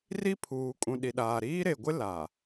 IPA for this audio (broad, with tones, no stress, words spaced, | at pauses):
ri˦pʰuː˨kʼũ˨ ɗi˨ɗaː˨ ɾiː˦ɾe˨ɡʷɪ˦ la˨